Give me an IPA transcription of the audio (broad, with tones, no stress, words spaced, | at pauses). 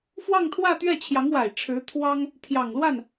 fwɑ˥˧ŋt̪ʰwä˥˧ t̪ɥɛ˥˩t͡ɕʰjɑ˧˥ŋwa˨˩ɪ̯ ʈ͡ʂʰɻ̩˧˥t̪ʰwɑ˥ŋ | t̪ʰjɑ˨˩ŋlwa˥˩n